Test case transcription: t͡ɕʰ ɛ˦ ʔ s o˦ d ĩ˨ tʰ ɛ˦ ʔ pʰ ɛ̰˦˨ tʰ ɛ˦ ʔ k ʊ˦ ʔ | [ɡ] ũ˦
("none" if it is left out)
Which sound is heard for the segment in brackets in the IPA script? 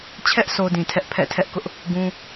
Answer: ɡ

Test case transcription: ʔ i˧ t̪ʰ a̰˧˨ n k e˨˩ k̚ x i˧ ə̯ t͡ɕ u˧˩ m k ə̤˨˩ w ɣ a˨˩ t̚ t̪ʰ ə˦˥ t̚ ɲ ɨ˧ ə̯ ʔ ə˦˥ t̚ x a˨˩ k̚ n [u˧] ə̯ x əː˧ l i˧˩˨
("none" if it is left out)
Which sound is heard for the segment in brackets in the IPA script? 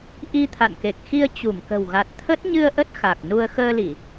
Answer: u˧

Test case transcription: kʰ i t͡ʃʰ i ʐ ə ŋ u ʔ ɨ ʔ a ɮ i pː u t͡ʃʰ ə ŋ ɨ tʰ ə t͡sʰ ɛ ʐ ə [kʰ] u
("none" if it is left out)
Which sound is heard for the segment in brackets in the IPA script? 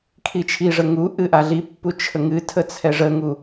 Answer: ŋ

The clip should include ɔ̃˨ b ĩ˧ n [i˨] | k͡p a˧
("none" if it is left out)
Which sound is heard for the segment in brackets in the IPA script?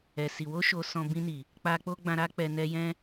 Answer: i˨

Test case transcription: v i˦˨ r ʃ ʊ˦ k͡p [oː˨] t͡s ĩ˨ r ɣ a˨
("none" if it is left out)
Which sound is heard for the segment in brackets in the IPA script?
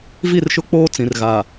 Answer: oː˦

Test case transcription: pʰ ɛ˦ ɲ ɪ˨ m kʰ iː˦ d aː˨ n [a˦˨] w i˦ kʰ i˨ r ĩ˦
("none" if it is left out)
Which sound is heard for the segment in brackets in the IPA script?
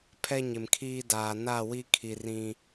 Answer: a˦˨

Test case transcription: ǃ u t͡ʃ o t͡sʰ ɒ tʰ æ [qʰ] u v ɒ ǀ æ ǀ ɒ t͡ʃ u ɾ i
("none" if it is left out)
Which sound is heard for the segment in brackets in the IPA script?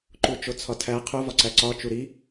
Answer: qʰ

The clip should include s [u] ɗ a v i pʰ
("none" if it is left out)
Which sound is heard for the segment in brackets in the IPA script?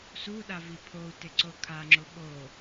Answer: u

